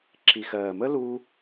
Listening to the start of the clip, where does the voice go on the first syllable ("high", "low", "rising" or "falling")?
low